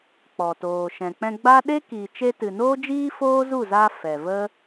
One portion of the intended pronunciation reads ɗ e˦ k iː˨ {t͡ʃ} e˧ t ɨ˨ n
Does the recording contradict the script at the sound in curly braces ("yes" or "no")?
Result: no